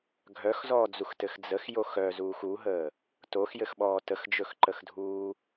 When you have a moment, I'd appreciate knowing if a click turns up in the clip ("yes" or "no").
yes